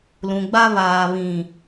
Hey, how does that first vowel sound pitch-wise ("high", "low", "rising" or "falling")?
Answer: low